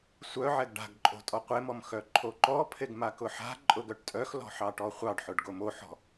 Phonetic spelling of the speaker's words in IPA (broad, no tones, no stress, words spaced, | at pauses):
sʷœʕɛɡ ɖa̤ɡǃʼo̤ tʼɔqʷemɔm xœǃʰoǃɔpʰeɡ makʊħa̤ǃʼʊ ɡœʈtʼœxlɔ̤ ħɑʈɔχʷɑɖħʊɖ ɡomoħɔ̤